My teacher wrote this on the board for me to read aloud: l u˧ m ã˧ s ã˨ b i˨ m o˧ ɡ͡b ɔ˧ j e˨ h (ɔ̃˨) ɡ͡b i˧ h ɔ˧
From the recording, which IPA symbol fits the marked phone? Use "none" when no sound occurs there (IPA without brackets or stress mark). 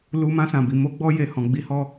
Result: ɔ̃˨